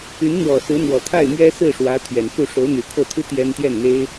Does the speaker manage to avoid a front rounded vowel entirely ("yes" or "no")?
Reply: no